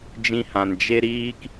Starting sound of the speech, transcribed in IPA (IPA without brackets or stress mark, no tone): d͡ʒ